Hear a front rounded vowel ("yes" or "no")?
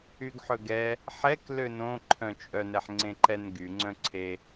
yes